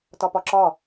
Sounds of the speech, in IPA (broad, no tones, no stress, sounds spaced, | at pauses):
t ɒ p ɒ ǁ ɒ